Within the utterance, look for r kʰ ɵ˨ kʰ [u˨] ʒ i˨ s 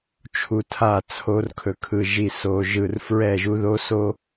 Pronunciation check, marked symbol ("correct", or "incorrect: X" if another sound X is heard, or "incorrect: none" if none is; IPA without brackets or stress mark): incorrect: ɯ˨